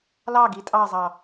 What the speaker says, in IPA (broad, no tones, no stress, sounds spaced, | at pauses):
l ɑ ɡ i tʼ ɑ zˤ ɑ